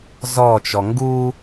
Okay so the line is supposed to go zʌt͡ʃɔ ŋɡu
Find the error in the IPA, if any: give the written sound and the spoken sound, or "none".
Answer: ʌ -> ɔ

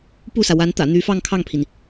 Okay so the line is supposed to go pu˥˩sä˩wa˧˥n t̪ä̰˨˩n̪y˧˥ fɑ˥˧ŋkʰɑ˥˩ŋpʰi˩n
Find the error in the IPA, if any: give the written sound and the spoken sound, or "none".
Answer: none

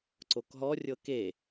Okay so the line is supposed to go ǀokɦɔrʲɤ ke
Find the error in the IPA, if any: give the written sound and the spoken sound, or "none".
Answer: none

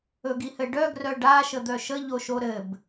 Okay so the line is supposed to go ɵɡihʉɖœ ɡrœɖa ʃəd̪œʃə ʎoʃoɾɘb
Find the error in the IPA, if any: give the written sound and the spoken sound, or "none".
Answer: ʉ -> ɘ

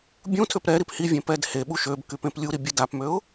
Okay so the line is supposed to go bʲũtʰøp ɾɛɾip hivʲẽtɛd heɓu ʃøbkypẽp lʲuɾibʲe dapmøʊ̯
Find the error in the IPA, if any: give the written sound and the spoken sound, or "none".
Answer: t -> p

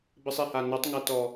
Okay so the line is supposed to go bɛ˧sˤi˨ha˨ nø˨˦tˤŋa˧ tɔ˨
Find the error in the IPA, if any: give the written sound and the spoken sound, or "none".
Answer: none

